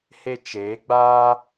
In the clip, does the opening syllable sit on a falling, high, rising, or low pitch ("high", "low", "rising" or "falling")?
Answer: high